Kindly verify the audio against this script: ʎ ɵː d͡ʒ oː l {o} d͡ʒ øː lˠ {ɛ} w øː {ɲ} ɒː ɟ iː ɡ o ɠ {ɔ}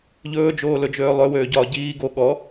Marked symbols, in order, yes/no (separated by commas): no, no, no, yes